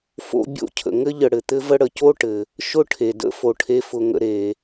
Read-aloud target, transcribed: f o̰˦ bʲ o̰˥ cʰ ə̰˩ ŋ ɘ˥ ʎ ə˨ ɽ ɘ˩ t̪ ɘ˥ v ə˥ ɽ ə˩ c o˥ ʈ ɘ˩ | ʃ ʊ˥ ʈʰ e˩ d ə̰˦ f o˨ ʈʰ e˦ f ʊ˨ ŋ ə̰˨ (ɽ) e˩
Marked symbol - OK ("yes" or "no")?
no